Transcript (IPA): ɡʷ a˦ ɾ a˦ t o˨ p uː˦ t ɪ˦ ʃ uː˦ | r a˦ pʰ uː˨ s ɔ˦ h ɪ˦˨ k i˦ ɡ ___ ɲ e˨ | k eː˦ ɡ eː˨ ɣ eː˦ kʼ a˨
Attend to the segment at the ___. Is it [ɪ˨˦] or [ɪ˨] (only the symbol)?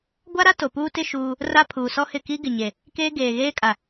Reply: ɪ˨